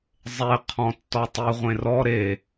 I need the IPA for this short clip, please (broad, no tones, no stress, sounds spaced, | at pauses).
zˤ e qʰ ɔ̃ tː ɔ tˤ i ʁʷ ẽ r ɔ ɾ e